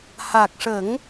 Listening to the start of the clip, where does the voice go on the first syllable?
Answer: low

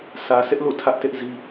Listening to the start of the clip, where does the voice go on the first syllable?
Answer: low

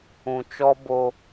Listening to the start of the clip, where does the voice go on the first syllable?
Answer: low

